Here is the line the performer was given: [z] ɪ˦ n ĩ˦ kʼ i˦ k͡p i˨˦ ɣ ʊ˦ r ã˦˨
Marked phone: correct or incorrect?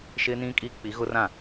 incorrect